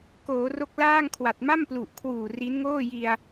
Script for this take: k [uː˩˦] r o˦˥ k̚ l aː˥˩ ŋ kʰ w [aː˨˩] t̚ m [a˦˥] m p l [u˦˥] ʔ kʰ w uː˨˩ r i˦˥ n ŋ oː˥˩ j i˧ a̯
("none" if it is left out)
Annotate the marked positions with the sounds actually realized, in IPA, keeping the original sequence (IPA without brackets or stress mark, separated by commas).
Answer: oː˩˦, a˨˩, a˥˩, u˨˩